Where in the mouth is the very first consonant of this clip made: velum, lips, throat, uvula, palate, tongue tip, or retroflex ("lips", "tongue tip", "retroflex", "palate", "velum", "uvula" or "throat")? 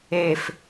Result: lips